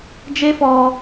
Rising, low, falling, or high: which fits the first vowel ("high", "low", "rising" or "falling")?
high